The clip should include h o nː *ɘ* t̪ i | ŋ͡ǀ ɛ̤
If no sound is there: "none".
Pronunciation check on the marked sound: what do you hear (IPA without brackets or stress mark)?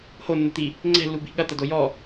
ɘ